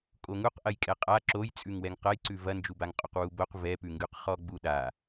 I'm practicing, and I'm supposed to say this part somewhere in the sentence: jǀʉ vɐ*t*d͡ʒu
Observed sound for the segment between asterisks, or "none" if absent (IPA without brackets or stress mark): n